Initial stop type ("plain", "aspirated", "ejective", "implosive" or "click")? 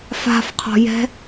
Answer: aspirated